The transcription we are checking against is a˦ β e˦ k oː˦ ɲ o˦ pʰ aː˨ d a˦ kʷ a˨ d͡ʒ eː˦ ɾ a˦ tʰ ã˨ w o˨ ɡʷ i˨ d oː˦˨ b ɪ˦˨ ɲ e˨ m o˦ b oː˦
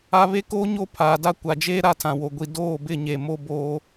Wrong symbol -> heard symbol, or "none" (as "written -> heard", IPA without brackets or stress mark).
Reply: none